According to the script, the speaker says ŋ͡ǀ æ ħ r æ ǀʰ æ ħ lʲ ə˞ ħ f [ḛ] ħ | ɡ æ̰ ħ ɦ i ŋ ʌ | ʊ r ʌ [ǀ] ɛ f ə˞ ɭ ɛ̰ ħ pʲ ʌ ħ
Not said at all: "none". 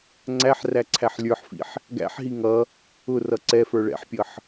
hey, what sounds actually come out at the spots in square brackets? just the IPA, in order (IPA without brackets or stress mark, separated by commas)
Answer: ḭ, ǀ